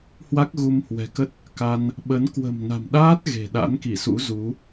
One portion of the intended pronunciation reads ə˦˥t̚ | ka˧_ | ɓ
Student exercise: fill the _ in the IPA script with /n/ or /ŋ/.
n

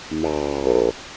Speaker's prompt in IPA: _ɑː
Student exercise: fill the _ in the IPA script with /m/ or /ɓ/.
m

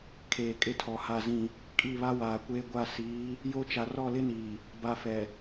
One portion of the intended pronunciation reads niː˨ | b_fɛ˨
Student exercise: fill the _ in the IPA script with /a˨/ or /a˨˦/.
a˨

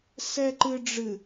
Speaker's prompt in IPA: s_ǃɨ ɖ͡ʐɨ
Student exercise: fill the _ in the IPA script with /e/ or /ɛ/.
ɛ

